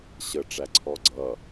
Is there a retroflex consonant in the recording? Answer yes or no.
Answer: yes